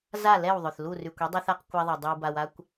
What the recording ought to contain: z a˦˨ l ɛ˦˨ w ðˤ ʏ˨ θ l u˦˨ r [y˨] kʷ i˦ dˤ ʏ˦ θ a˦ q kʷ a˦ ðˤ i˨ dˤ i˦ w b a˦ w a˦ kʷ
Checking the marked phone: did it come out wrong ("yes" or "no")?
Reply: no